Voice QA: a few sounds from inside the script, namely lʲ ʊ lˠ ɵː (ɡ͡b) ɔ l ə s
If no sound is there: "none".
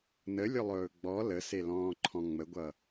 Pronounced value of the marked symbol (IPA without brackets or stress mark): ɡ͡b